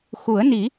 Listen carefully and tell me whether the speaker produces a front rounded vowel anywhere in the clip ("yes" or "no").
no